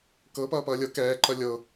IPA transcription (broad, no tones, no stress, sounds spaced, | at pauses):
k ɤ p ʌː p ʌː lʲ ɤ k ɛː ǃ ʌ lʲ ɤ